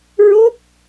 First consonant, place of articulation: alveolar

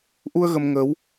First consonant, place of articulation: glottal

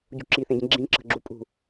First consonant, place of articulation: palatal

